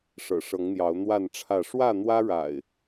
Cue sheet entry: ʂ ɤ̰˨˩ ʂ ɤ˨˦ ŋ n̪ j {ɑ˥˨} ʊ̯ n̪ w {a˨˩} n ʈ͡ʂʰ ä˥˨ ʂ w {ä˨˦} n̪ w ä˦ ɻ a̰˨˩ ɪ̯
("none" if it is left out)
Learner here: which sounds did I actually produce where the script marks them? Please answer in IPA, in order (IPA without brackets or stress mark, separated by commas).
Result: ɑ˨˦, a˥˨, ä˥˨